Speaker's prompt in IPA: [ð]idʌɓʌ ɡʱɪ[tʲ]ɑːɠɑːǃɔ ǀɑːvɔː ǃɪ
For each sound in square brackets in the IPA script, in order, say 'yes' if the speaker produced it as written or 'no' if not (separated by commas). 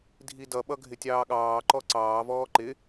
no, yes